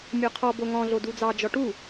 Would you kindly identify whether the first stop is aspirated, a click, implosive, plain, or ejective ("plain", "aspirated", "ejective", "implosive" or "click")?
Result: aspirated